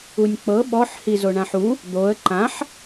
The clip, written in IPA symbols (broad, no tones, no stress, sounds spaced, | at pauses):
u nʲ k͡p ɤ ɓ ɔ ħ h i z o ɳ ã ħ u | d̪ o ə̯ ǃ ã ħ